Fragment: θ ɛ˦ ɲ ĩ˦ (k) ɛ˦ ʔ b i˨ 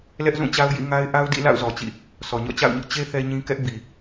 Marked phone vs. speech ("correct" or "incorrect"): correct